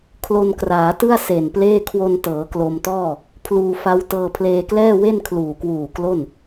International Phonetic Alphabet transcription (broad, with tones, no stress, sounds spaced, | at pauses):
kʰ l o˧ n k r aː˩˦ t ɯ˥˩ a̯ s e˨˩ n p l eː˥˩ kʰ w o˧ n t ɤː˩˦ k l o˧ m t ɔː˥˩ | pʰ l uː˧ f a˦˥ w t ɤː˧ pʰ l eː˧ k l ɛː˥˩ w e˥˩ n kʰ l uː˨˩ k w uː˨˩ k l o˥˩ n